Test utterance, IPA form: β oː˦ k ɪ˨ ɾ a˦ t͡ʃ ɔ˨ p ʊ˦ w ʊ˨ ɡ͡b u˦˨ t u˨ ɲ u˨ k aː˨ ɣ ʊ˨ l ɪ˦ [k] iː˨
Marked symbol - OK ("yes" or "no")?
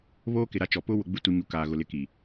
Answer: yes